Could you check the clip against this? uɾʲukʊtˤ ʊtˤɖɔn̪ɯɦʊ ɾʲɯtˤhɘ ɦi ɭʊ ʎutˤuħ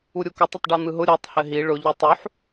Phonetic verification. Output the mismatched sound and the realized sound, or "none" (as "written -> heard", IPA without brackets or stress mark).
none